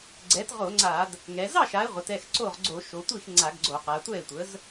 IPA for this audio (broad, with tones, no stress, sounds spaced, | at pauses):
ɡ͡ǀ ɛ˩˥ t ʁ o˧˩˧ ŋ͡ǀ a˧˩˧ d | ŋ ɛ˩˧ z ɑ˥˩ ʃ a˩˧ e̯ ʁʷ ə˩˧ t ɛ˥˩ x ǀ o˥˩ ʁ ɡ͡ǀ o˧˩˧ ʃ o˩˧ tʷ i˥˩ x ŋ͡ǀ a˧˩˧ ɡ ɡ͡ǀ o˧˩˧ q a˩˧ tʷ ɛ˥˩ e̯ tʷ ə˩˥ z